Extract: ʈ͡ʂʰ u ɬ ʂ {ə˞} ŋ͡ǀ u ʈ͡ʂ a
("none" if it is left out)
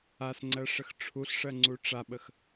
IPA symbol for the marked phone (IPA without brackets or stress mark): ɜ